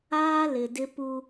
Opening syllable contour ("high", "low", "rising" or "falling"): high